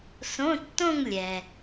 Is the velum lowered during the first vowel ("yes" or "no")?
yes